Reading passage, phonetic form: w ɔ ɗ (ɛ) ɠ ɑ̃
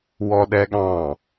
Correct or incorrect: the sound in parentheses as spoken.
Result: correct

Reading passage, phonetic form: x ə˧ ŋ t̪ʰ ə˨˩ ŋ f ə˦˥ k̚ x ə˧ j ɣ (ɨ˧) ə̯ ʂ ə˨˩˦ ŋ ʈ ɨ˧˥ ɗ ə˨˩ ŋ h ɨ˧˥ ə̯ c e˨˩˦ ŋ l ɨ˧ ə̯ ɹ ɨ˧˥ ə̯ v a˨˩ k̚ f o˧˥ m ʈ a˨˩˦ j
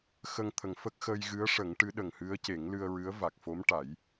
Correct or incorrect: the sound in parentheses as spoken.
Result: incorrect: ɨ˧˥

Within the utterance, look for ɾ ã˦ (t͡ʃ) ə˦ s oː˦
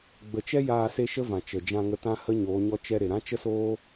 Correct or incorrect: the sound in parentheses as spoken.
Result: correct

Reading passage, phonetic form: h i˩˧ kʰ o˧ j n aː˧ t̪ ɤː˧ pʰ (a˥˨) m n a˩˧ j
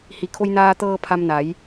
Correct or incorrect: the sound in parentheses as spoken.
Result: incorrect: a˧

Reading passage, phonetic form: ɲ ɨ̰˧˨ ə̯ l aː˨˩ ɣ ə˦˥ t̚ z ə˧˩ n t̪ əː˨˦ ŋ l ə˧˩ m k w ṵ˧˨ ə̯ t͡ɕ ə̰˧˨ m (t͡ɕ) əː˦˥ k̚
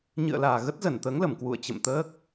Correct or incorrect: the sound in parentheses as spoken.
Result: incorrect: t̪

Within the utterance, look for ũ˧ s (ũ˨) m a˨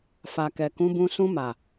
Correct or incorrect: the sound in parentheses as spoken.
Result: incorrect: ũ˧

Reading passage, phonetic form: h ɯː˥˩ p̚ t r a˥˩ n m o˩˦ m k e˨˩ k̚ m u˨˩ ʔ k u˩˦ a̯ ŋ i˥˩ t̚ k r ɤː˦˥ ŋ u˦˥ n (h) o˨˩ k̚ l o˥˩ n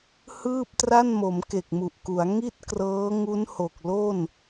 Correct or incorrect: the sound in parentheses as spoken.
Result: correct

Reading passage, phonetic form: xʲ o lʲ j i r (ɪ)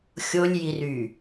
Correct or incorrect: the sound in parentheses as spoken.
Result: incorrect: y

